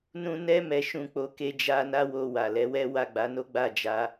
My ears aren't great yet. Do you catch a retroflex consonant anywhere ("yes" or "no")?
no